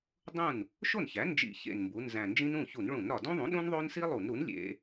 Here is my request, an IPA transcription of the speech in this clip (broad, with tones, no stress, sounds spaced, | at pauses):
dˤ ũ˥˩ n | ʃ o˥˩ n ç æ˩˥ n d͡ʒ ḭ˧˩˧ ç ḛ˨˩ n m b u˩˧ n z æ̃˨˩ n d͡ʒ ĩ˦ n ũ˥˩ ç u˧˩˧ n ɭ ũ˧˩˧ n ɾ ɒ˨˩ d ũ˦ ðˤ ũ˩˥ ɗ ũ˦ n ðˤ o˦ n s i˦ lˠ u˧˩˧ n ɾ u˩˥ n lʲ ḛ˩˧